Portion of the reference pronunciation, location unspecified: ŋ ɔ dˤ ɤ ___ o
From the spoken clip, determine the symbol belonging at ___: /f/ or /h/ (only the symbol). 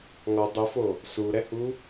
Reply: f